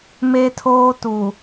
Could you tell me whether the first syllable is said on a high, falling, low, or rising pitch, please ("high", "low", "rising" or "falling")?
high